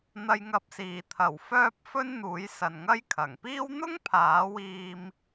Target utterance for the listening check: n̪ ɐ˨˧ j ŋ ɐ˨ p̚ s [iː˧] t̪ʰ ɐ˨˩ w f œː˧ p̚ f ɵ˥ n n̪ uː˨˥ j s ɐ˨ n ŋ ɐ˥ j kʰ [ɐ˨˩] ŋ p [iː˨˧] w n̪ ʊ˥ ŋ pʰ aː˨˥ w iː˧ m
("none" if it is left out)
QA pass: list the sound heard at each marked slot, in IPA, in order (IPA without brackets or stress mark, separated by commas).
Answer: iː˨˩, ɐ˨˩, iː˥